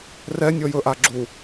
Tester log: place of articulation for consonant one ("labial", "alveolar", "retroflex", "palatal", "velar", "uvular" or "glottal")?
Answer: alveolar